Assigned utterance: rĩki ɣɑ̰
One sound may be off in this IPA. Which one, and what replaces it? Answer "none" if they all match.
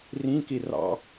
ɣ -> r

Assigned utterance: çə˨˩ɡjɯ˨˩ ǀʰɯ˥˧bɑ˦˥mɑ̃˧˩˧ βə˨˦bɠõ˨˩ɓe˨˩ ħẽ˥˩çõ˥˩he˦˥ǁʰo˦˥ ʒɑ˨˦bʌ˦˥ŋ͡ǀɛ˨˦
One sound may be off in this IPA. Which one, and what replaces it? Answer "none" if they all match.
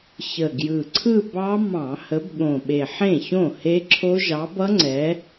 β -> h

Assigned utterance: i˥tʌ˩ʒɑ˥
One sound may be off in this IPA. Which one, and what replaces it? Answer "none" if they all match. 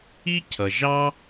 t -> cʰ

